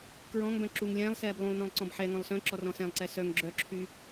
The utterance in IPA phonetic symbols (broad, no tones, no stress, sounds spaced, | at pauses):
k ɹ ɔ̃ ŋ b œ̃ ǁ u ŋ lʲ ɛ̃ː lˠ s ɛː b lˠ ũ lˠ n ɔ̃ lˠ ǀ ɔ̃ b ħ ɛ ŋ ɔ̃ lˠ s œ̃ ǁ ɔ r ɔ̃ s ɛ̃ lˠ ǀ ɛ s œ ŋ ɡ͡ǁ œ ǁʰ y